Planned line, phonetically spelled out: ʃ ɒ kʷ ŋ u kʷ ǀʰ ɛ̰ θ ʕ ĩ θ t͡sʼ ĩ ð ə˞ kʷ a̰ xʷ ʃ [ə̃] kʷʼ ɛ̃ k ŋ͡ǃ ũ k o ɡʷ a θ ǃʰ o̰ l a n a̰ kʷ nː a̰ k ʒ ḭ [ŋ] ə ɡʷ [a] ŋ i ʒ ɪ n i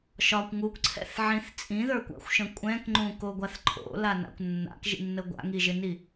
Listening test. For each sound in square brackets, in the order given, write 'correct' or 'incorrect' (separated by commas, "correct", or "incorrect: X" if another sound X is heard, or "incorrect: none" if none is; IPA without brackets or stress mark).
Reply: correct, incorrect: nː, incorrect: a̰